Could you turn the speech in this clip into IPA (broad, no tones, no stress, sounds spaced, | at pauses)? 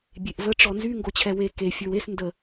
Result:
bʲ e ʔ v ə ʈ͡ʂ ɔ n z y ŋ ɡ o t͡ɕʰ ɛ w e k e fʲ ə˞ w e s n d ə